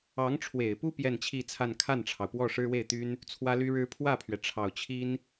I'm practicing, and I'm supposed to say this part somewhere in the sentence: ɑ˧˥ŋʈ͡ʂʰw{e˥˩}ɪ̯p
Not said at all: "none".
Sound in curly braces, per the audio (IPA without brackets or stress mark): e˨˩